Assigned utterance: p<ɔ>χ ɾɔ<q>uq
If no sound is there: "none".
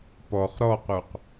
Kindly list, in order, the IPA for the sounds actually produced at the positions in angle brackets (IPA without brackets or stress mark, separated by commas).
ɔ, q